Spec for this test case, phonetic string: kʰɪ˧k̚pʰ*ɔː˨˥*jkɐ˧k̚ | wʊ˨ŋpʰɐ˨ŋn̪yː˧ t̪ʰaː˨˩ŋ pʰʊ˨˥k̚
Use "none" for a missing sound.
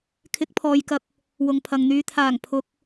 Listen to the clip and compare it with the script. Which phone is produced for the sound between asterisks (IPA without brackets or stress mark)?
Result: ɔː˨